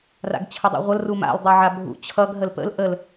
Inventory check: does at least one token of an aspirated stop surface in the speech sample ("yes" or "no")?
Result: yes